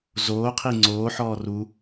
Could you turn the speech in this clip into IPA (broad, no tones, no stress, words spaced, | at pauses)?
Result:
zoːqʰi ŋ͡ǀoːħɔːr u